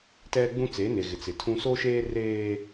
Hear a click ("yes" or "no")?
no